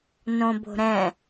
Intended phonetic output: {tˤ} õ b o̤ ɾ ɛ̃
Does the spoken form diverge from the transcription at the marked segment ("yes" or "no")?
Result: yes